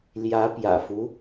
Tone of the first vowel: rising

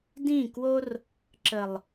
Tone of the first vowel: falling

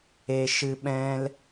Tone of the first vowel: high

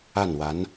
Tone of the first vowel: falling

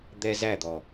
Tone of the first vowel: high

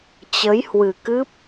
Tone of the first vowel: rising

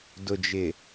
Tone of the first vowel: low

